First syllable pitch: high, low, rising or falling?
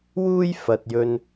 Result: high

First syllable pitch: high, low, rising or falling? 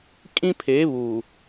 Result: high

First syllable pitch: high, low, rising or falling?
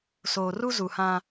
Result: low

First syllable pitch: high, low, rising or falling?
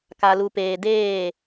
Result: low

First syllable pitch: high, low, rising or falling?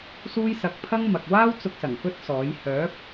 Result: high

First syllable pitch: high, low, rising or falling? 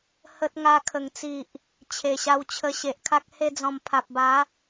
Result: high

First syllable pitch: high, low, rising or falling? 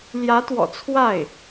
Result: rising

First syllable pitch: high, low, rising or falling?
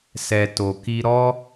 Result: high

